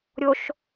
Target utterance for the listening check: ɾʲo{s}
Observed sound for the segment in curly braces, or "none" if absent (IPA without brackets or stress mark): ʃ